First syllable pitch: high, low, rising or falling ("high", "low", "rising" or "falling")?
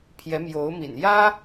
rising